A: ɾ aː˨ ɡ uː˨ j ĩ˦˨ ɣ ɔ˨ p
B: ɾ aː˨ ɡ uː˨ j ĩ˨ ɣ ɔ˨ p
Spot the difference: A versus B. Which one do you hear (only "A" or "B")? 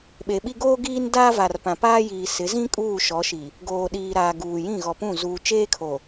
A